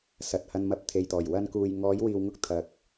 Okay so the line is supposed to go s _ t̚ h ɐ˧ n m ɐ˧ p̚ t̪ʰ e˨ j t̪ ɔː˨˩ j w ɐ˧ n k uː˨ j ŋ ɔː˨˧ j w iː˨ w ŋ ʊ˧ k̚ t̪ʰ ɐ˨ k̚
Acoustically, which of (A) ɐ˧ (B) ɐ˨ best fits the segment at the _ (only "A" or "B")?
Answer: B